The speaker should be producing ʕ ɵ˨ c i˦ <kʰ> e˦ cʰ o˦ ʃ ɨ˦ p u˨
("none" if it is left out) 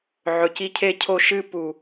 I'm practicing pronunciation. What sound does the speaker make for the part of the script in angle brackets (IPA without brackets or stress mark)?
cʰ